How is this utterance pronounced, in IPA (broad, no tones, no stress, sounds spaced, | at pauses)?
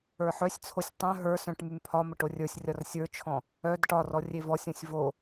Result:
ə˞ ħ œ sʲ t͡sʰ o sʲ tˤ œ̃ ɦ ə˞ s œ̃ ʈ m y m pʰ ɒ m ə ʈ o rʲ ə˞ sʲ rʲ ɒ r sʲ ə˞ t͡ʃʰ ɔ̃ | œ d ʈ ɒ r ɔ rʲ e v ɔ sʲ õ sʲ v o